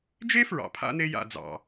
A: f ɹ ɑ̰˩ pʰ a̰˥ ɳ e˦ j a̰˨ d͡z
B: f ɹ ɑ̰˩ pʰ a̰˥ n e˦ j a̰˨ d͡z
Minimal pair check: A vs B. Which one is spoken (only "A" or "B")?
B